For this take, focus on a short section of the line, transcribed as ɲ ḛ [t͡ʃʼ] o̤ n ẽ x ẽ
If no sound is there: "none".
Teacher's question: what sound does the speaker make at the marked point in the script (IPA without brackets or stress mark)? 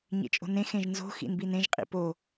t͡ʃʼ